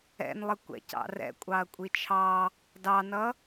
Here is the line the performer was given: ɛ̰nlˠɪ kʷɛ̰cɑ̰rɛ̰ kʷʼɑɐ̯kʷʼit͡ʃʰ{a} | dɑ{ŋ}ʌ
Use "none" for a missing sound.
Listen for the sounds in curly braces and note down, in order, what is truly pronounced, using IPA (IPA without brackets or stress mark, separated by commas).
ɑ, n